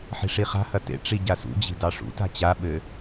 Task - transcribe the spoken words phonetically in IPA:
ħ i̤ ʂ i χ a̤ h ɐ t ḛ ʈ͡ʂ i ɟ a s ṵ d͡ʑ i̤ d ɑ ʂ ṵ t a̤ t͡ɕ a ɓ ɘ

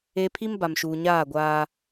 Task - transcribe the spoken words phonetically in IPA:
e˦ pʰ i˦ m b a˨ m ʃ uː˨ ɲ aː˦˨ ɡʷ aː˦

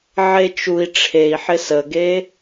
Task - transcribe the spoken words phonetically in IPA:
ʕ e t͡ʃ u i̯ ʈ͡ʂʰ e i̯ ħ ɪ s ə ɡ e

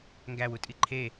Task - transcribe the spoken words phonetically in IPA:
ŋ ɡ æ w u tʼ i ǃʰ e

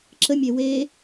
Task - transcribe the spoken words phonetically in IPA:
ǁ ə mʲ e w e

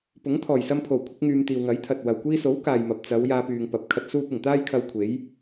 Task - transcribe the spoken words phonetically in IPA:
p ʊ˨˥ ŋ t̪ʰ ɔː˨˩ j s ɐ˧ m pʰ o˨˩ w kʷʰ ɪ˧ k̚ ŋ yː˨ m t̪ iː˨ w ŋ ɐ˨˥ j t̪ʰ ɐ˨ t̚ w ɐ˨ w kʷ iː˧ s o˨˥ w k aː˨ j m ɐ˨ p̚ t͡s ɐ˨˧ w j aː˧ p yː˨ ŋ p ɐ˨˥ p̚ kʰ ɐ˧ t̚ s uː˥ p̚ ɪ˨˩ ŋ t̪ aː˥ j kʰ ɐ˧ w kʷʰ e˨˥ j

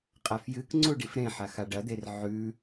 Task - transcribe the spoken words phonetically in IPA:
qʼ a f j ɨ k ŋ͡ǀ u ɖ i f ɾ ẽ ħ a x a ɖ ɐ d̪ e r ʕ ʉ

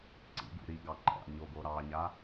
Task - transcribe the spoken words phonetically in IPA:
ǀ ḭ ɡ ṵ ɾ i ɡ ɑ ǃ ɑ̰ ɲ o ɡ o ɾ ɑ ɲ a

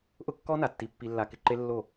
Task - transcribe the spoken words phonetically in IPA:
ʔ ʊ˦ kː ɔ˦ n a˨ tː i˧ pː i˧ lː a˧ k ɪ˧ ǃ e˦ lː o˦˨

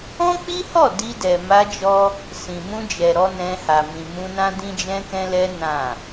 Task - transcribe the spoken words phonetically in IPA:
ɔ̃˦ k͡p i˦ h ɔ˦˨ d i˧ d ɛ˨ m a˧ d͡ʒ ɔ˦ | s ĩ˨ m ũ˧ d͡ʒ ɛ˨ ɾ ɔ˧ n ɛ̃˧ h a˨ m ĩ˨ m ũ˧ n ã˦ d ĩ˦ d͡ʒ ɛ̃˦ k ɛ̃˦ l ɛ˦ n ã˦˨

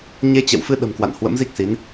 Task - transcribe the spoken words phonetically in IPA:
ɲ e˧ t͡ɕ ɛ̰˧˨ w f ɨ˧ ɗ ə̤˨˩ m k w a̰˧˨ n h w ə̰˧˥ m z i˦˥ k̚ s i˨˦ n

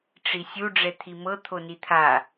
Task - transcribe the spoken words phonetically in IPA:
ʈ͡ʂ i sʲ u ɖ͡ʐ ɛ t̪ʰ i m ɤ t̪ʰ o n i t̪ʰ a

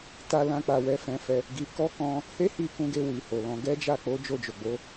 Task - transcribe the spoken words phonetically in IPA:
t a˧ l ã˧ k͡p a˨ w ɛ˨˦ f ɛ̃˧ f ɛ˧ | ɡ i˧ k ɔ˦ k ɔ̃˧ | h e˦ h i˧ k ũ˧ ɡ e˧ w i˨ h o˨ l ɔ̃˧ ɡ ɛ˦ d͡ʒ a˦˨ k͡p o˨˦ d͡ʒ o˦˨ d͡ʒ o˨ ɡ͡b o˨˦

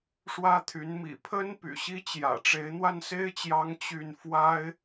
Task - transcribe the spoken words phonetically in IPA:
ʂ w ä˥ t̪ʰ y˧˥ n m ḭ˨˩ pʰ ə˥ n p y̰˨˩ ɕ i˥ t͡ɕ j ä̰˨˩ ʈ͡ʂ e˧˥ ɪ̯ n̪ w a˥˩ n s e˥ ɪ̯ t͡ɕ j ɑ˧˥ ŋ t͡ɕ y˥˩ n f w a˥ ɪ̯

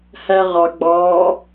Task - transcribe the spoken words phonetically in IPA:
h æ ʁ ɑ ɡ͡b ɑ

